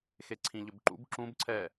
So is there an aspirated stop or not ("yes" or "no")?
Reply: yes